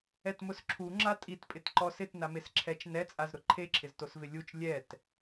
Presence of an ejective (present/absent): present